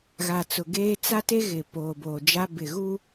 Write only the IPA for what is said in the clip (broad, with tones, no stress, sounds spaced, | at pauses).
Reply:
ɣ a˨ t͡s ʊ˨ ɡ eː˦ t͡s a˦ t e˦ ɣ ɪ˨ p oː˨ b oː˨ d͡ʒ a˦ b ɪ˨ ɣ uː˦